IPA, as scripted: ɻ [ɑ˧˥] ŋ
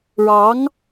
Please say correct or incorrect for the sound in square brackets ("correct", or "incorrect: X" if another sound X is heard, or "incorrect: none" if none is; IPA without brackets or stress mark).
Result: correct